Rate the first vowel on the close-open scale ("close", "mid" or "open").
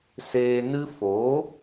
mid